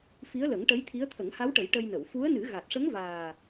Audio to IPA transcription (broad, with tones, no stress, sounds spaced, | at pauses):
f i˧˥ ə̯ l ə˨˩˦ ŋ ʈ ə˧˥ j t̪ʰ i˧˥ ə̯ t̪ʰ ə˨˩˦ ŋ h a˧˥ w ʈ ə˨˩˦ j ʈ ə˧ j n ə˨˩˨ w f u˧˥ ə̯ n ɨ˨˩˦ ɣ a˨˩ t̚ ʂ ə˧˥ ŋ v aː˨˩